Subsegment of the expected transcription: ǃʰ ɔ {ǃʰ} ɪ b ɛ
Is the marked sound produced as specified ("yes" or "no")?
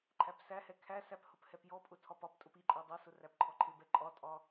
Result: yes